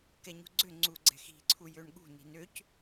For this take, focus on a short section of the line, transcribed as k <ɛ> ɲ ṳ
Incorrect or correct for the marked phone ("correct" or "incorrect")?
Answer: correct